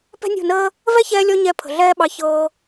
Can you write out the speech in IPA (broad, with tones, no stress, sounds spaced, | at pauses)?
p ɛ̤˦ nʲ o̤˦˨ n əː˦ | v ɛ˦ ç ɛː˧ lʲ ɔ˧ ɲ ɛ˧ pʰ ə̤˨ ɮ ɛː˦ ɓ ɑ˧ ç ɤː˧